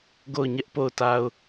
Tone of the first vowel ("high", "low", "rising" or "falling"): falling